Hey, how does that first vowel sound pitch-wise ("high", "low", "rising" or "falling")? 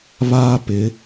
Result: high